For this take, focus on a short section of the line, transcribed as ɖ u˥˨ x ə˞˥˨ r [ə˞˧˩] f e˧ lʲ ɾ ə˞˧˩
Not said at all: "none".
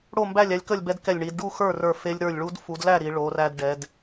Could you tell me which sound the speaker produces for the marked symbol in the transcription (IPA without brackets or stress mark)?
ə˞˧˩